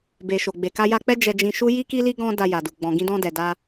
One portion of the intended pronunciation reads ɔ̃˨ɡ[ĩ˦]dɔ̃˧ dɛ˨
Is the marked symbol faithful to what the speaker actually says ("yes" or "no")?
no